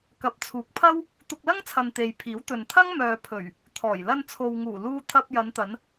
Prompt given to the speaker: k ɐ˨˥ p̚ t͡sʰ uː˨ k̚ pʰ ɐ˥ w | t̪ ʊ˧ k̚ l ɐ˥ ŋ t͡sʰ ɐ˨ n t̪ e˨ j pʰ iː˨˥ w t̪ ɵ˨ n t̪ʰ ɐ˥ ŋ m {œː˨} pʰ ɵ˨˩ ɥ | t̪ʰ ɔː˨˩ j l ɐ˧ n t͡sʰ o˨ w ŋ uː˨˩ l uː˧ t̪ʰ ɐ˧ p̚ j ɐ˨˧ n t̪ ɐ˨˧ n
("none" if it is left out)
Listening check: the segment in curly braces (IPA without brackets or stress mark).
œː˨